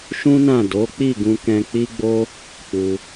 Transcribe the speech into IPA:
ʃũ˦nã˦˨ do˨˦k͡pi˦˨ɡũ˧kɛ̃˧ k͡pi˦ɡ͡bo˦ | k͡pu˧

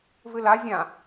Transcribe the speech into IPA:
vɨla zʲã

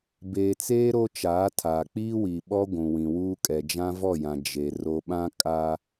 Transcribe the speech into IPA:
beː˨t͡seː˦ ɾo˦t͡ʃaː˨˦tʰaː˨ k͡piː˦wi˨ɓɔ˦ ɡʷũ˨wĩ˨wuː˦ kʼɛ˨d͡ʒã˦vɔ˦˨jã˨ d͡ʒe˨ ro˨ɓã˦ kʼa˦

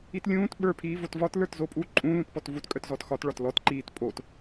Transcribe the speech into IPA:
itlʲũːt ɓə˞ pʰiːvotvɒt lə˞tzopʼu ǃʼũ lũtpɔtvut kʼœtzɔtxɒt ɭɒtlɔt ǃiːtpʼot

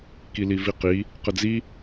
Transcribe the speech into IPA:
kiliviqi | qəd͡zi

